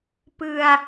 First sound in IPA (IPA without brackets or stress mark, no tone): p